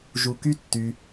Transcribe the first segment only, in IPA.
ʒ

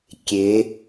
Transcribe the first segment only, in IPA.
kʲ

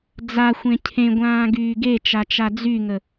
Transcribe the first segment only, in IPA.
d͡z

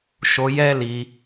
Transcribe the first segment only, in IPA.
ʃ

